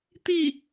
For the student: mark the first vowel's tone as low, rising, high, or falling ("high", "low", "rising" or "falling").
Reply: falling